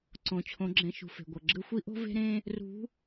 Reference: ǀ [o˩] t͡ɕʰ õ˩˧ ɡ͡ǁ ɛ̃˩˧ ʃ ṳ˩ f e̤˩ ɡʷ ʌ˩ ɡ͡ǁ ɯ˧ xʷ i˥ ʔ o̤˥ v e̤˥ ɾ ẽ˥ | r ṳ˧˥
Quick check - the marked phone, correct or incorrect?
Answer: incorrect